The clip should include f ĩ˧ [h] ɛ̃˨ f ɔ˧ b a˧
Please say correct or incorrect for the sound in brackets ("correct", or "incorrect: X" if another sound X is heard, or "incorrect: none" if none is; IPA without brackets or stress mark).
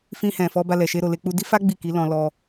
correct